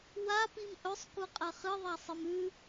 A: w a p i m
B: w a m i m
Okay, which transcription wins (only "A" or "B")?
A